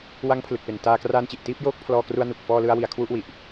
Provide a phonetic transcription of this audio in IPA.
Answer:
w a˦˥ ŋ pʰ l ɯ˨˩ k̚ p e˨˩ n t aː˧ k r aː˦˥ n t͡ɕ i˨˩ ʔ t iː˥˩ p̚ j oː˦˥ k̚ pʰ l ɔː˧ k r u˧ a̯ n u˨˩ k̚ f ɔː˧ l ɯ˧ a̯ w i˨˩ a̯ kʰ w u˥˩ ʔ w i˨˩ ʔ

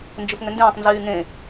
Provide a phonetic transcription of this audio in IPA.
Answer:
n d͡ʒ ʊ f ŋ ʏ n d ẽː tˤ n z yː ŋ ẽ

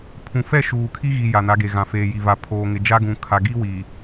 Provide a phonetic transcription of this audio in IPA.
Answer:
pʰ ũ˨ f ɛ˦˨ ʃ uː˨ kʰ i˦ ɣ i˨ j a˨ n a˨˦ ɡ e˨ ɣ ã˨ f eː˨ j i˨ v a˨ pʰ oː˨ ŋ ɪ˨ d͡ʒ a˦ ɡ ũ˨ kʰ a˨ ɡ i˦ w i˨

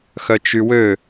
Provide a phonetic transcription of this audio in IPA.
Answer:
x œ t͡ʃ y w ø

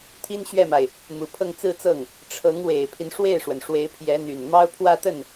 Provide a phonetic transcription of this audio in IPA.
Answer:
t̪ʰ i˥ n ɕ ɥ ɛ˥˩ m a˩ ɪ̯ | m u˨˩ pʰ ɤ˥˧ ŋ t͡s ɹ̩˥˧ t͡s ɤ˥˩ ŋ | ʈ͡ʂʰ ɤ˧˥ ŋ w e˨˩ ɪ̯ pʰ i˦ n ʂ w e˥˩ ɪ̯ ʂ w ə˩ n ʂ w e˧˥ ɪ̯ pʰ j ɛ˧˥ n̪ y˨˩ n m ɑ˥ ʊ̯ pʰ w ä˥˧ t̪ ə˥˩ n

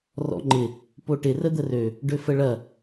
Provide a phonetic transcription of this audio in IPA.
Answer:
r ɔ̰ ŋ͡ǃ ɪ | p o ʈ ɪ r ə d̪ ə r ø | ɖ ø f ə ɭ ɐ

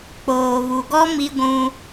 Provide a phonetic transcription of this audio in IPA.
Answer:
k͡p oː˨ β u˨ ɡ ɔ˦ m i˦ ɡʷ ũ˦

